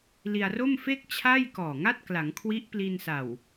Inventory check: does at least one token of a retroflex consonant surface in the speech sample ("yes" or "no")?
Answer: no